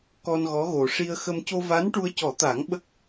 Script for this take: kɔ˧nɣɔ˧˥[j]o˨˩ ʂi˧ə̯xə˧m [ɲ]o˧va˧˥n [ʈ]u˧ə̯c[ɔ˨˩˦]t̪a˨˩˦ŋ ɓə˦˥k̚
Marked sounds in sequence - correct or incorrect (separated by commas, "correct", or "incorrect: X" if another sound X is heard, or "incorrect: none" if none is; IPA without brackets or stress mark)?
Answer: incorrect: ɣ, incorrect: c, correct, correct